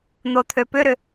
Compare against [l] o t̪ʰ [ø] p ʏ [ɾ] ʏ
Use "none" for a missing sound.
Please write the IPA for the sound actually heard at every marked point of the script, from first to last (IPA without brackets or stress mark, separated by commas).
n̪, ø, ɾ